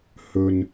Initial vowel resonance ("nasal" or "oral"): oral